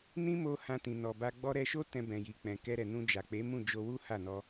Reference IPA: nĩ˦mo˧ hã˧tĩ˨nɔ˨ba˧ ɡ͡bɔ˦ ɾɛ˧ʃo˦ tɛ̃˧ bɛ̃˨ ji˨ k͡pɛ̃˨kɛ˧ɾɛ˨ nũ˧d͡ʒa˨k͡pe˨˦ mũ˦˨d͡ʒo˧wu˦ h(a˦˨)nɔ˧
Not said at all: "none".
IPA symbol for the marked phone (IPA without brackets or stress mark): a˦˨